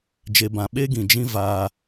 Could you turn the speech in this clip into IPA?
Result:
d͡ʒ e˨ b ã˨ ɓ e˦ ɡ ĩ˨ d͡ʒ ĩ˦ v aː˧

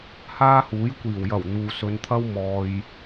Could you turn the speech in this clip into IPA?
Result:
h aː˥ h uː˨˥ j kʷ iː˨˩ w j ɐ˨˩ w n̪ uː˨ s ɵ˨˧ n t̪ʰ ɐ˥ w m ɔː˨ j

